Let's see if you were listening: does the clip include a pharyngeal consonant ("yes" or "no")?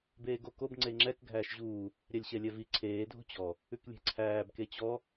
no